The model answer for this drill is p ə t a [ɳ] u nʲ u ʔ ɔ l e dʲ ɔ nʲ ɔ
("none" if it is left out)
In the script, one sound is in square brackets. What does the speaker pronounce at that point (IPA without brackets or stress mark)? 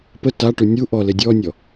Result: ʈ